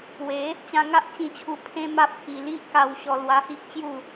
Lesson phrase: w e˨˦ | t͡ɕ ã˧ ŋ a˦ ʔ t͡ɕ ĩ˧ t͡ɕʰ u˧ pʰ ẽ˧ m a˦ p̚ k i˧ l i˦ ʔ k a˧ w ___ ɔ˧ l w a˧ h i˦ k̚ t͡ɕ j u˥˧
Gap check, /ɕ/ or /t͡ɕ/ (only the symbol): ɕ